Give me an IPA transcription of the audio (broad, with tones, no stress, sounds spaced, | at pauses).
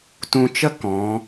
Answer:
t ũ˧ t͡ʃ ə˦ k ɔ̃˨˦